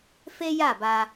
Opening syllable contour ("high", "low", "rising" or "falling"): high